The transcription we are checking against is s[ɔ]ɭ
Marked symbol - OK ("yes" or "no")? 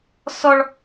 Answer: yes